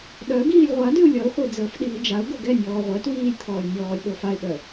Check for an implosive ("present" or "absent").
present